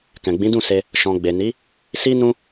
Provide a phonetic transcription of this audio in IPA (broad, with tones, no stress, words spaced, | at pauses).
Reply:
kɛ̃˨ ɡ͡bĩ˨˦dũ˦˨se˧ | ʃɔ̃˨ ɡ͡be˨ni˨˦ | si˦nũ˦